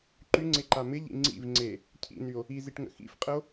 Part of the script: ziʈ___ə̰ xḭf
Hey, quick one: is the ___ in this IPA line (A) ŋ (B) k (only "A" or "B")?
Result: A